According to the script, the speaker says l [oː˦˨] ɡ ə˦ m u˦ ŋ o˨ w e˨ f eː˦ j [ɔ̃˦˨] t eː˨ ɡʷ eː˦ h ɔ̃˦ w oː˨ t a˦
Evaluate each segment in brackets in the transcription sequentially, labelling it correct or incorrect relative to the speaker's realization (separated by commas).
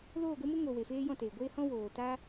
correct, correct